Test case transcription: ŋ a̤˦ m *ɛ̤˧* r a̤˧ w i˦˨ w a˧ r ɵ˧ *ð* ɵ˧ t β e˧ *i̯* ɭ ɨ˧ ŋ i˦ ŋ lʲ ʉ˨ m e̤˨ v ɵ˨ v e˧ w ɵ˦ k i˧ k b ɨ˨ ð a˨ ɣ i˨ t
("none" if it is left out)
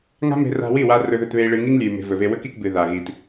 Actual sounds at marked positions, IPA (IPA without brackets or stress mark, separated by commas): e̤˧, ð, i̯